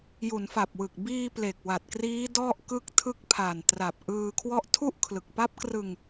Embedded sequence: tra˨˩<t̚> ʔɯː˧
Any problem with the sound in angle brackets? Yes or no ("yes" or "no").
yes